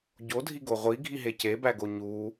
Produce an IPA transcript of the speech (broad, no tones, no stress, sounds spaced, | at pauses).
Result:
ɟ o dʱ i ɡ o ʁʷ i ɡʱ i ɦ e c e b æ ɡ o ɲ u